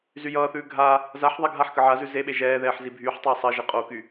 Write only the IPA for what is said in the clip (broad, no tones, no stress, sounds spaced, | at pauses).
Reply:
z y j ʌː θ ʉː ɡʱ a | z a ħ ðˤ ɛ ɡʱ a ħ k ə ʕ a z ʉ z e ɓ e ʒ ɛː ð ɛː ħ z i bʱ yː ħ tˤ ʌː sˤ ɜ ʒ e qʼ o k y